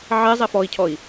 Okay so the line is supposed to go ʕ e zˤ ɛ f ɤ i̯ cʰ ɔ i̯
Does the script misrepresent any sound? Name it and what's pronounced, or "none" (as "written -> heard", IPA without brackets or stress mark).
ɤ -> ɔ